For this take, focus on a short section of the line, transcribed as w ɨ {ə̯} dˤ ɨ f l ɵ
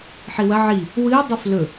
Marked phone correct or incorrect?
incorrect: ɪ̯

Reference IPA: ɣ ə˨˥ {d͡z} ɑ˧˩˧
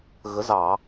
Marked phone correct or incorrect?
incorrect: z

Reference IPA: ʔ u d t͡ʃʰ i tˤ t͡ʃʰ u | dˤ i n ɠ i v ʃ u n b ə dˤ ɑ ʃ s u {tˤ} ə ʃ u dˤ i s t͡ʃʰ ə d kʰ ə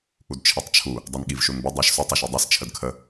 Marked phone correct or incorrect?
correct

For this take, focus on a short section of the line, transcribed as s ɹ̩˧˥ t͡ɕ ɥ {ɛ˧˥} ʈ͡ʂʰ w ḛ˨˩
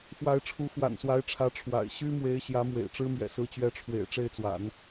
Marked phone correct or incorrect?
correct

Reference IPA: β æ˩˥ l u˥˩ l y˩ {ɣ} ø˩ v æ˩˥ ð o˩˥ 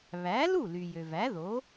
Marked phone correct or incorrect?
incorrect: j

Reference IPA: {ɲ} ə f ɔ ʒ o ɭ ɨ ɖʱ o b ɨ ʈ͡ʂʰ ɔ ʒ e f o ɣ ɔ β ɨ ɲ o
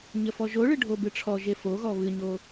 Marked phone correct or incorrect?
correct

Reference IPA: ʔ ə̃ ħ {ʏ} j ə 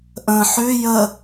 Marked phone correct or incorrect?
correct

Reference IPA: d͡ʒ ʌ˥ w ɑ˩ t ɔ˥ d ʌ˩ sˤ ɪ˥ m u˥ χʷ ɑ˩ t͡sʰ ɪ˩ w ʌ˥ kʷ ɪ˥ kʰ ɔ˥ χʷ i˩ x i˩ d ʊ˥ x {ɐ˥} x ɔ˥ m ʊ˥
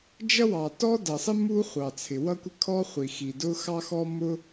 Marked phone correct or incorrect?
incorrect: ɑ˥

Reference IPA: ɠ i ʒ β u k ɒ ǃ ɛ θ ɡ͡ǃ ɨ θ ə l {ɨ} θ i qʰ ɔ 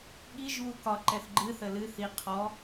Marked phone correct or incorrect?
correct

